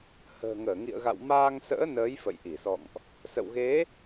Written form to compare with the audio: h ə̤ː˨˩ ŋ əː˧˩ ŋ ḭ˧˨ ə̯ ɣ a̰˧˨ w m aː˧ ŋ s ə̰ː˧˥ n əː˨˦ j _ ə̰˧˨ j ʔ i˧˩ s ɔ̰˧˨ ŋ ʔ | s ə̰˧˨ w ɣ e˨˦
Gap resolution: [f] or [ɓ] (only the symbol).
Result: f